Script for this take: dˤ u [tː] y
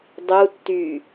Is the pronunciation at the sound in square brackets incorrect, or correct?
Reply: correct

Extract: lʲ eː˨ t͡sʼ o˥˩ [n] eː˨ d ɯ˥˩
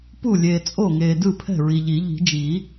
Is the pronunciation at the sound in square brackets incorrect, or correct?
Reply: incorrect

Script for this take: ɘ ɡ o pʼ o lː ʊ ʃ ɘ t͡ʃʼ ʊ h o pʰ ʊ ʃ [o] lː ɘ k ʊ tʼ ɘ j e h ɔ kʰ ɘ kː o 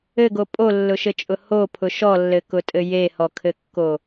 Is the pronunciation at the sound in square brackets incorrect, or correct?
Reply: incorrect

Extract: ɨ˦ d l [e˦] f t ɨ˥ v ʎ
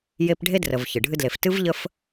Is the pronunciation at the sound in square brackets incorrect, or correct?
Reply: incorrect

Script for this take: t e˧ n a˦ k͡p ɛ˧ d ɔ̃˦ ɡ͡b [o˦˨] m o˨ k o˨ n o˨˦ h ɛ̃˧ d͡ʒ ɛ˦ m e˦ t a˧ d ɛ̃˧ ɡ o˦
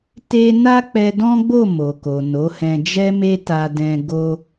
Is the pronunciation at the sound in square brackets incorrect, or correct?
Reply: correct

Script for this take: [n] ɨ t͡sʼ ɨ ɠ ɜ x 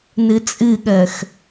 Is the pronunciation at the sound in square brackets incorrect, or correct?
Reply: correct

